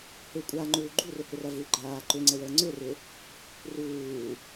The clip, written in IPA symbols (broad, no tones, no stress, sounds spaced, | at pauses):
h ʏ kʷʼ a ŋ͡ǃ uː ɡ͡ǃ u r ʏ h ʏ r ɐ v u ɡ͡ǃ aː ǃ ʏ ŋ͡ǀ ə w əː ŋ͡ǀ ʏ r ɪ | r uː